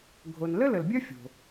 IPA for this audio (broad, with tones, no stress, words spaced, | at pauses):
ɡʱo˨n lə˥lə˩lbʲœ˥ fʲo̤˩